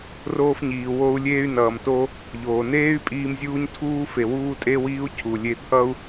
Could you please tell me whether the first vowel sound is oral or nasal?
oral